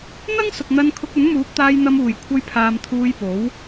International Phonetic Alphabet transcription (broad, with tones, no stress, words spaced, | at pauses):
n̪ɐ˥ŋsʊ˨k̚n̪ɐ˧n kʰʊ˧k̚ɵ˨˥nmuː˨˥p̚t̪aː˧j n̪ɐ˧muː˨˩jkʷʰɐ˧jpʰaː˨m t̪ʰuː˧jpo˨˥w